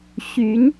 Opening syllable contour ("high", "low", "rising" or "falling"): rising